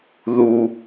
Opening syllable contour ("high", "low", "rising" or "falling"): low